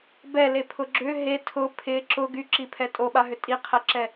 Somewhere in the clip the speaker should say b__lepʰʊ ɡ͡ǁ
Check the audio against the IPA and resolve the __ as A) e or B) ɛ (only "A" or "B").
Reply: B